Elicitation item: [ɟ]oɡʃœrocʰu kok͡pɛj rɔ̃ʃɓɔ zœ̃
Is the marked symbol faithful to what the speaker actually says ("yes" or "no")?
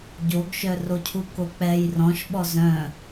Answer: yes